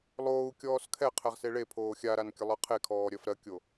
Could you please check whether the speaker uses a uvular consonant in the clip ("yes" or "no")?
yes